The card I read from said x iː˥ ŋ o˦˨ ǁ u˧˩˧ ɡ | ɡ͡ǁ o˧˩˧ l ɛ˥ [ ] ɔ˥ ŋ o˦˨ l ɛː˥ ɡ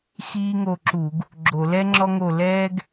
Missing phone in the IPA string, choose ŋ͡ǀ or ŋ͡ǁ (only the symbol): ŋ͡ǁ